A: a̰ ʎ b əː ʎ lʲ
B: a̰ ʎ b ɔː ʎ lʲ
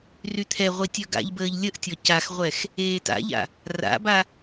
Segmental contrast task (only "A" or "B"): A